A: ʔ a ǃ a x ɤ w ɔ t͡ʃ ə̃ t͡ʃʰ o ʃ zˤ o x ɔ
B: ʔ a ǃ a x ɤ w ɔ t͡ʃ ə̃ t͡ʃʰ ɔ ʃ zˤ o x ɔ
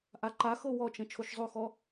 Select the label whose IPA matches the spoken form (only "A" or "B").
A